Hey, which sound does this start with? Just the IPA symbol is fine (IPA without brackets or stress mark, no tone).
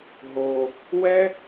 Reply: ɦ